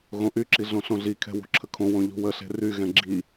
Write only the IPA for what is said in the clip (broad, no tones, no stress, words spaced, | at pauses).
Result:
ɣõʔyǁi ɮõɬõɮikʰɛ̤ wṳǁʰəkʰõwõ ʎṳwəɬe̤ ryɣɛ̃ ɡ͡ǁi